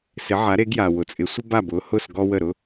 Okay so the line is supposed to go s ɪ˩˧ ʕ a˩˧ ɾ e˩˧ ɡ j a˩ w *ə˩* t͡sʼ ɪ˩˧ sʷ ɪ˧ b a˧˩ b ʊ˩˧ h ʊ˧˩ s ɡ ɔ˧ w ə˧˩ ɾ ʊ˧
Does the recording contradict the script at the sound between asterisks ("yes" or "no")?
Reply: yes